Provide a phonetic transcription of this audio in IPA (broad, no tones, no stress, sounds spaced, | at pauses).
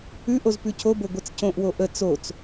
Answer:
ʉ ʔ o z p ʉ cʰ o b o ɡʷ ɛ t͡s c õ ʔ w o ʔ ə t͡s o t͡s